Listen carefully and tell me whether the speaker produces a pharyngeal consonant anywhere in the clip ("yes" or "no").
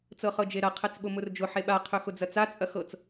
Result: yes